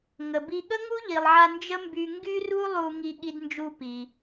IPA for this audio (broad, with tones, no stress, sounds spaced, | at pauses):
ŋ ə˩ b i˧ ɠ ə˥ ŋ u˥ ʎ i˩ lˠ ʕ a˧ n d͡ʒ ə˥ m b y˧ ŋ ɡ y˥ r u˥ lˠ u˧ ŋ i˥ ɠ i˥ d n d͡ʒ u˥ p i˩